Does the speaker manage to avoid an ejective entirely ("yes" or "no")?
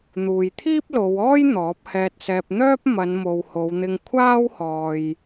yes